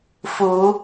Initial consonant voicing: voiceless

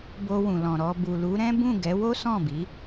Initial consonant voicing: voiced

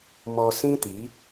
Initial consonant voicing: voiced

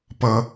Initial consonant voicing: voiceless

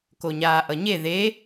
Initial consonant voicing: voiceless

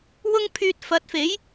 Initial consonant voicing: voiced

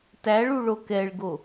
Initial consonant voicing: voiceless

